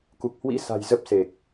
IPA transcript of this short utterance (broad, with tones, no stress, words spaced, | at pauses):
ku˨˩k̚hwḭ˧˥sa̤˨˩j zə˦˥p̚se˨˩k̚